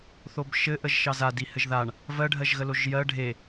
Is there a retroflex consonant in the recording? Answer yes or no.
yes